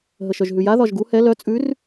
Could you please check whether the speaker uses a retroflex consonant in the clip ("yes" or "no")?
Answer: no